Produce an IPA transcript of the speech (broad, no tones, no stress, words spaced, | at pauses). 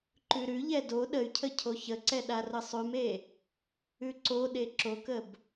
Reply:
ǃʉɾʉʎɛ do ɗəy̯cʰə cʰoçəǀɛ ɗarəsˤʉme | ʉǀoɗe ǁokəb